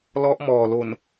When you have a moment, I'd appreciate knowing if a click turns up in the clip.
no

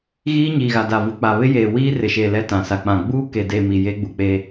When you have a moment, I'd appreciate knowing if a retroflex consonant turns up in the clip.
no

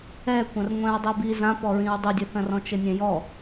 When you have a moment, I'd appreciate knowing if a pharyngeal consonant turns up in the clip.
no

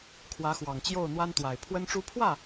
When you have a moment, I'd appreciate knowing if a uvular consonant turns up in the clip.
no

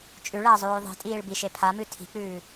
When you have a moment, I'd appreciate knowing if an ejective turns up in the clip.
yes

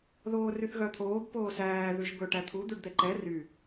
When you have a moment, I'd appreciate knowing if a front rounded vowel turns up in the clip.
yes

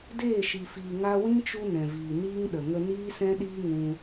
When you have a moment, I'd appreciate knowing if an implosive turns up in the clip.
yes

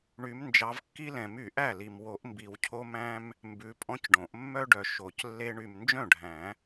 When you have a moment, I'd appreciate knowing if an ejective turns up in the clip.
yes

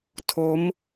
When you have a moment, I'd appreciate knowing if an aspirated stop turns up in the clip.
yes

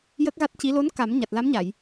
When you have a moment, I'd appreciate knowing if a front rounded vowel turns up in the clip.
no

